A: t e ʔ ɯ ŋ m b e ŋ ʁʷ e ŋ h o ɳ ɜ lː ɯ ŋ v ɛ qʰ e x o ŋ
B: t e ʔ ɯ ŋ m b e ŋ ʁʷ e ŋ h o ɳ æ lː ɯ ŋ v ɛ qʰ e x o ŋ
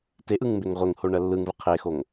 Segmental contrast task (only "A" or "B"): A